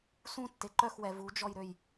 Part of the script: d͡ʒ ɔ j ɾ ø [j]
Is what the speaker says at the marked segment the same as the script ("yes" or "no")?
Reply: yes